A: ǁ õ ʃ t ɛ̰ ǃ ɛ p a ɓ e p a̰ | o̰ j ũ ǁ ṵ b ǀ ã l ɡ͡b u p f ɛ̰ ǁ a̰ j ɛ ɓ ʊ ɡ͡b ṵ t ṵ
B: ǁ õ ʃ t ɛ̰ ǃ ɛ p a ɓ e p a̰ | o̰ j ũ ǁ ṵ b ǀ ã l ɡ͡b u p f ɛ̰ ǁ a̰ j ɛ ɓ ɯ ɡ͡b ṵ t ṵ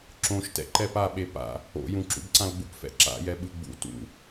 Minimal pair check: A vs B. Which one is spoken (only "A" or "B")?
B